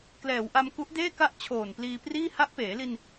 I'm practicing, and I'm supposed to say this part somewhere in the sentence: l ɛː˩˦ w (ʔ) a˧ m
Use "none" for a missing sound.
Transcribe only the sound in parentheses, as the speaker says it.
ʔ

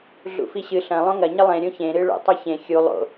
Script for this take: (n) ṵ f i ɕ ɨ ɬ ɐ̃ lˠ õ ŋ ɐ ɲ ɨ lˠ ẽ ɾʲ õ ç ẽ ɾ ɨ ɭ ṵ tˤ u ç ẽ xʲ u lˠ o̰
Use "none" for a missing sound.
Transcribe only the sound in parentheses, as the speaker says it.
ɮ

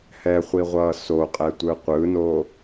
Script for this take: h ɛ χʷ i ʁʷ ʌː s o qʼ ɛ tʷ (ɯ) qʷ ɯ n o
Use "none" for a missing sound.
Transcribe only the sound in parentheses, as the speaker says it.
ɯ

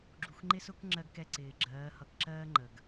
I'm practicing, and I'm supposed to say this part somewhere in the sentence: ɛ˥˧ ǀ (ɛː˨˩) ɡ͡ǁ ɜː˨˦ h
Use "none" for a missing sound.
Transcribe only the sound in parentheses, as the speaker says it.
ɪː˨˩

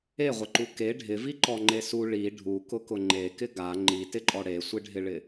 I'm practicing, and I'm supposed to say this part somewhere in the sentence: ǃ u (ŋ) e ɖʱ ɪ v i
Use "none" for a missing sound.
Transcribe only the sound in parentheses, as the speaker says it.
k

